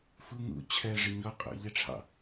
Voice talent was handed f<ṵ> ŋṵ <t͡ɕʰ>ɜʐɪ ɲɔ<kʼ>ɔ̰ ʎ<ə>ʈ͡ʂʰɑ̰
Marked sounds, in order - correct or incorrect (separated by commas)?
incorrect, correct, incorrect, correct